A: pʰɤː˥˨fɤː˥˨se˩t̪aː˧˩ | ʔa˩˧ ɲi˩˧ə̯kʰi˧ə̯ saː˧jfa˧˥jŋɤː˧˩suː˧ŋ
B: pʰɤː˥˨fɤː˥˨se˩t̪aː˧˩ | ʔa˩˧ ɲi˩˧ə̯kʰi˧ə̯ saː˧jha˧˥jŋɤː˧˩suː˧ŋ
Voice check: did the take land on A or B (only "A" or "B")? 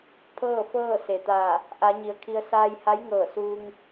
B